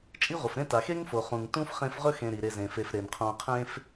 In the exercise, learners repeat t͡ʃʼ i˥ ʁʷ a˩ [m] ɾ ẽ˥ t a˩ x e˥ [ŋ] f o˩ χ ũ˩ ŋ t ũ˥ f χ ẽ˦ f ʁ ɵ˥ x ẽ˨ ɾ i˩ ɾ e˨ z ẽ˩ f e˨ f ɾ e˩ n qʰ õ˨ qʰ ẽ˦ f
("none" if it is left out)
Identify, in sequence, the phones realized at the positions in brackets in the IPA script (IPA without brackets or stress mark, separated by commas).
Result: f, ŋ